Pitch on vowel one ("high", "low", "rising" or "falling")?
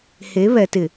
rising